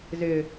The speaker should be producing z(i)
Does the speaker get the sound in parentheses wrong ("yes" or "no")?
yes